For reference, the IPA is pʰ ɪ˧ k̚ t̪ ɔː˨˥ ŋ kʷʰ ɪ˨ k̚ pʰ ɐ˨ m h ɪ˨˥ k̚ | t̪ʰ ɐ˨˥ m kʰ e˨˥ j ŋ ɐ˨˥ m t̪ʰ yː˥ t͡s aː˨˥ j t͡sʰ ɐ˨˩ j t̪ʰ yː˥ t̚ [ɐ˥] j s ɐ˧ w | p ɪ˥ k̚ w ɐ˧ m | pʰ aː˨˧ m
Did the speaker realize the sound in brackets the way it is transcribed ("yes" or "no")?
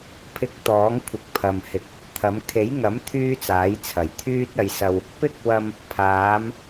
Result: no